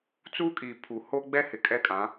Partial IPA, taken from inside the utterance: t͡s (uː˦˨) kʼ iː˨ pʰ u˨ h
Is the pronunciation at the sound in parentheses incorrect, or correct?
incorrect